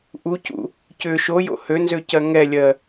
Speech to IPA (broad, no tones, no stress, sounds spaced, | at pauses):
ʔ u c ṵ | c ʏ ʃ o j o̰ h ø n z ø c ɜ ŋ ɛ lʲ ɜ